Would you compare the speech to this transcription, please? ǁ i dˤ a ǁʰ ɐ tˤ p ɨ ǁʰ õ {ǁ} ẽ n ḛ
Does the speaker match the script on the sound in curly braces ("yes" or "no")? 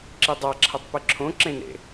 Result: yes